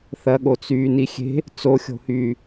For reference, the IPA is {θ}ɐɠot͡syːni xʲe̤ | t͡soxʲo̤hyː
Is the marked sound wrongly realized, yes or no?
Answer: no